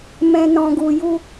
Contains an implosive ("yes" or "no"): no